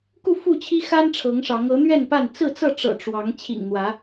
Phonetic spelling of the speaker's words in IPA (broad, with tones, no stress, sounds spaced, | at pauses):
k u˥˨ f u˥˨ t͡ɕʰ i˦ x a˦ n ʈ͡ʂʰ ɤ˨˦ ŋ ʂ ɑ˨˦ ŋ ɤ˨˦ n̪ ɥ ɛ˥˨ n p a˥˨ n t͡s ɹ̩˥˨ t͡s ɤ˥˨ ʈ͡ʂ ɤ̰˨˩ ʈ͡ʂ w ɑ˨˦ ŋ t͡ɕʰ ḭ˨˩ ŋ n̪ w ä˨˦